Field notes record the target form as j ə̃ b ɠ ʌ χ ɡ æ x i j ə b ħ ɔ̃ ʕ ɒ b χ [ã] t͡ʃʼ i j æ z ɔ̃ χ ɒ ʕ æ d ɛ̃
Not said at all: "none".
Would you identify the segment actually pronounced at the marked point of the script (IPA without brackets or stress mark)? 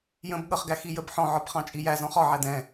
ɑ̃